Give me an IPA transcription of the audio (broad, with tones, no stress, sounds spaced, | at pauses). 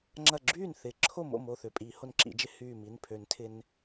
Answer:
ŋ͡ǁ ɐ˧˩ ɡ͡ǁ yː˥˩ n θ ɪ˨˩˦ ǁʰ o˥˩ m o̰˥˩ m o˧˩ θ ʏ˩˧˩ pʼ i˨˩˦ h o˧ n ǁ ḭ˨˩˦ d͡ʒ ɪ˧ h yː˧˩ m i˩˧˩ n pʰ ø˨˩˦ n tʰ ɪ˧ n